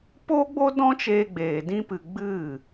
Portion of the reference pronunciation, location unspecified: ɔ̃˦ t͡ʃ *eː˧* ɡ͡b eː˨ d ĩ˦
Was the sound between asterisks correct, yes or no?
yes